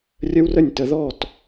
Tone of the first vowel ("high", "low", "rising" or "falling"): high